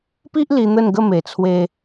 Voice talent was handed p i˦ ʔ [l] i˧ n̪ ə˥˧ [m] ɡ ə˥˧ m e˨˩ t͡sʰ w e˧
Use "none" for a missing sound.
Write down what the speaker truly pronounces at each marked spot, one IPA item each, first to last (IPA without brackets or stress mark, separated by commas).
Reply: l, n